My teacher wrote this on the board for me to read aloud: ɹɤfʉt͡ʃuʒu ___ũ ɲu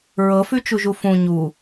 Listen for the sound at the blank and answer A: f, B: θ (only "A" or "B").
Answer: A